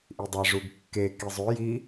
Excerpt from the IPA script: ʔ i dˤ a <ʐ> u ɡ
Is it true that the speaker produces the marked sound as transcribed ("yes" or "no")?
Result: yes